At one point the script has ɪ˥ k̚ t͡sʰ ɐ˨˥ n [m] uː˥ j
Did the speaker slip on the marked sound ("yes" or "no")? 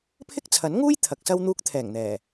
yes